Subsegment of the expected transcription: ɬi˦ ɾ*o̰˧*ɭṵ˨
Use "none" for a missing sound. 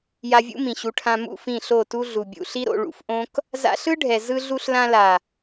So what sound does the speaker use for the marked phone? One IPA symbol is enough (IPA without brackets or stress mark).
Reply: o̰˧